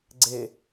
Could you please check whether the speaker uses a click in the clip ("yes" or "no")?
yes